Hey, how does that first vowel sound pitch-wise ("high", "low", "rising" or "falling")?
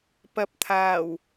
low